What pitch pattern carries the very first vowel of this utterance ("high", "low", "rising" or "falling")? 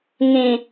low